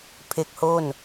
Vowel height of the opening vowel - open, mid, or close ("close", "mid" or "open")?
mid